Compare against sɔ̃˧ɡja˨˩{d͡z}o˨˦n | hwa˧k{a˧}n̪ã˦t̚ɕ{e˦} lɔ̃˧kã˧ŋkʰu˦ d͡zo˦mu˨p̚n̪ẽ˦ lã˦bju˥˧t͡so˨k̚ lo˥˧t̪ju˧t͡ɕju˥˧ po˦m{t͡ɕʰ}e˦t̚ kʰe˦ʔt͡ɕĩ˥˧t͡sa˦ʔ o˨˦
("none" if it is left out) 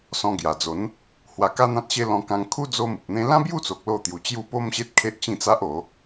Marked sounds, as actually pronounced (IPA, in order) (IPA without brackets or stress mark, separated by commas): d͡z, a˦, e˦, ɕ